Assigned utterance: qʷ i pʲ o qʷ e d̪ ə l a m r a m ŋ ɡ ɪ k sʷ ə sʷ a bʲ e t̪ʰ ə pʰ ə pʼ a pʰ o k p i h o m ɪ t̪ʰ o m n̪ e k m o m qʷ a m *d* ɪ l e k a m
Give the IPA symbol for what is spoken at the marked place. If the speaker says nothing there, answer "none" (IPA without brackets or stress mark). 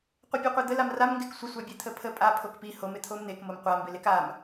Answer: b